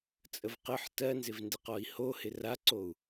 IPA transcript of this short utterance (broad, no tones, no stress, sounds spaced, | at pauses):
t͡sʼ ə v q ə ħ t ɜ n z ɪ v n d ɪ q ɔ i̯ h o h ɪ r a ǀ o u̯